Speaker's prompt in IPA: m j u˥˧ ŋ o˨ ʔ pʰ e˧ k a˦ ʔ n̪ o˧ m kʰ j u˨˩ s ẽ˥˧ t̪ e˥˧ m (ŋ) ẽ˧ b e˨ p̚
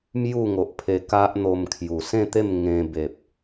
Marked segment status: correct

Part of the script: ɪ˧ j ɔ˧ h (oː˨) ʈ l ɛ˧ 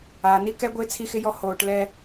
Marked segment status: correct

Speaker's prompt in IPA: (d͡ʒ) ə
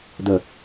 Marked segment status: incorrect: d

